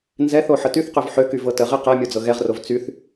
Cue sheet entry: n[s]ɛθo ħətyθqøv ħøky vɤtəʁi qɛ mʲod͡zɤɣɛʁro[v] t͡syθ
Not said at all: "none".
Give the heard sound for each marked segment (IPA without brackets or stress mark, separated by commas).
z, v